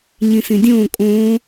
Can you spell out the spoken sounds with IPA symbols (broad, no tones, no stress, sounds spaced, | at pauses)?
ɲ ĩ s ĩ dʲ õː kʼ õː